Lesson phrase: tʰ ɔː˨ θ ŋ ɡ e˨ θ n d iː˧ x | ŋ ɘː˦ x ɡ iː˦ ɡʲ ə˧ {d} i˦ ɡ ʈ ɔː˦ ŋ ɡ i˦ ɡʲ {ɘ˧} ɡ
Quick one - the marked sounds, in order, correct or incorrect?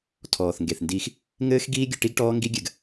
incorrect, correct

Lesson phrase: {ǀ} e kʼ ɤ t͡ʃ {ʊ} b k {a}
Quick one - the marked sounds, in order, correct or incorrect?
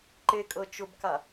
incorrect, correct, correct

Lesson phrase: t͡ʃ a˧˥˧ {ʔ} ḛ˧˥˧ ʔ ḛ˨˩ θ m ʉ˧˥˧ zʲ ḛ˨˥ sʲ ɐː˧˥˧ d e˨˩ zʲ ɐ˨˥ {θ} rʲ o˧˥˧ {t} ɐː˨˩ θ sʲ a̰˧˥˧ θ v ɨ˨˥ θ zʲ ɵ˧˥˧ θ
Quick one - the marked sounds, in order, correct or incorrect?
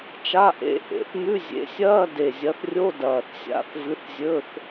correct, correct, incorrect

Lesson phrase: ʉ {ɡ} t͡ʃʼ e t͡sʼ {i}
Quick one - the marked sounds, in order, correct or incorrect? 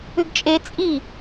correct, correct

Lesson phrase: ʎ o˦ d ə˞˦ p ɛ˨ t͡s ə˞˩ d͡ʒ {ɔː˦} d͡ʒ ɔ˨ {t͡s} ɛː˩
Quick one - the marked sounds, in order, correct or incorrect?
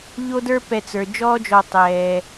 correct, incorrect

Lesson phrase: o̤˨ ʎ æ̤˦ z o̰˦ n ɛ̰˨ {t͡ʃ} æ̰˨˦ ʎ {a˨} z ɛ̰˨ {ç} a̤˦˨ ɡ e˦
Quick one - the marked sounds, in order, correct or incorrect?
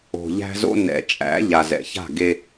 incorrect, correct, correct

